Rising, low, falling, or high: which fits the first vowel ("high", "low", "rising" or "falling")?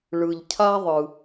low